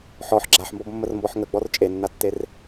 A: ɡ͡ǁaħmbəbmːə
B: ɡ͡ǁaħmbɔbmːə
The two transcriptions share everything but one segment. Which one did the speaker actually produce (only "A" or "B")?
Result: B